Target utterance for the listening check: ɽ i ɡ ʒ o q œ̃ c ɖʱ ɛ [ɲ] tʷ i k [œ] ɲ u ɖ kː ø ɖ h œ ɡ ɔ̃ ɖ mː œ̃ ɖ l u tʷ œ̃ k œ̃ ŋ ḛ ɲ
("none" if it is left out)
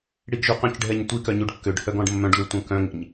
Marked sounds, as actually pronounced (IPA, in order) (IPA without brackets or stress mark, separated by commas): ɲ, œ